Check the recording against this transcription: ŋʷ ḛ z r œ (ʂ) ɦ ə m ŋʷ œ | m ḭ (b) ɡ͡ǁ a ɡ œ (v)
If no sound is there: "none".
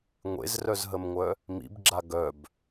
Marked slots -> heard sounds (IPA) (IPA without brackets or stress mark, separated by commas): z, b, b